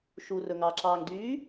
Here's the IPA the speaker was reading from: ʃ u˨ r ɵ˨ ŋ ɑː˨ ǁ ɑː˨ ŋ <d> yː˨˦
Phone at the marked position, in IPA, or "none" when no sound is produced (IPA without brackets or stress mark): d